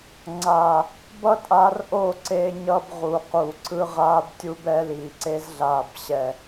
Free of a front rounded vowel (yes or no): yes